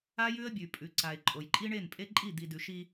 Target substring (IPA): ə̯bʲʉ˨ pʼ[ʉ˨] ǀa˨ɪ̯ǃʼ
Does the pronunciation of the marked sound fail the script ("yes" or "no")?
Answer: no